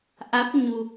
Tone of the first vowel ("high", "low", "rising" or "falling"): rising